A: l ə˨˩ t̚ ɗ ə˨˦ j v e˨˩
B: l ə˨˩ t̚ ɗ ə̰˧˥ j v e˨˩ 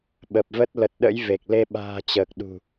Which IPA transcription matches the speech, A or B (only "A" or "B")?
B